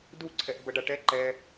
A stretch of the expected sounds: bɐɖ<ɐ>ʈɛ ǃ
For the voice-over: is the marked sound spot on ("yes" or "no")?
no